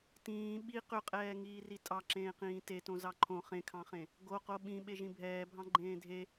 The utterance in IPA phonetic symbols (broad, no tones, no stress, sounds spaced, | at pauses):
t ĩː ɓ i q ʏ qʼ ɛː ŋ iː r i tʼ ɑ ǁ ẽː q ĩː t e t õ z ɑ ǃʰ õ χ ẽ kʰ ɑ̃ χ ẽ | ɡ o q o ɓ ĩ ɓ e ʒ ĩ bʱ ɛː bʱ ɑ̃ ɡ͡ǃ ẽː dʱ e